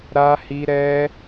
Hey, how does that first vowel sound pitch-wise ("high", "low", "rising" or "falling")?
high